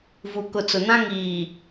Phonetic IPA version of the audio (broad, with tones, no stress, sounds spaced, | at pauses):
v u˨ k ʊ˨ t͡s ʊ˨ n ã˦ ŋ iː˨